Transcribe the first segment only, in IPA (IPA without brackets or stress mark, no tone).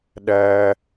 ɗ